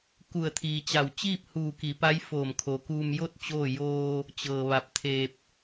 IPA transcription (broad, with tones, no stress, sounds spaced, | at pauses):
k u˧˩ ə̯ t̪ʰ iː˩ t͡ɕ a˧˩ w t͡ɕ iː˥˨ p̚ h uː˧˩ k i˩˧ p a˧˥ j f oː˧˩ m kʰ o˩ k uː˧ m j o˥˨ t̚ t͡ɕ oː˥˨ j oː˧ | t͡ɕ ɤː˩ ʋ a˧˩ p̚ t̪ʰ eː˧ p̚